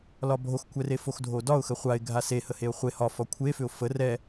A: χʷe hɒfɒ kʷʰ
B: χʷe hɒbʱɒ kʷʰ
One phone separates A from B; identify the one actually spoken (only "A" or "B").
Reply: A